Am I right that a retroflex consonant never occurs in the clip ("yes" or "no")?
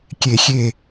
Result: yes